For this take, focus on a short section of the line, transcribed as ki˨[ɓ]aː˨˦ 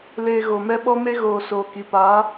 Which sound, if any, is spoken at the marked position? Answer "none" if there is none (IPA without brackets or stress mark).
p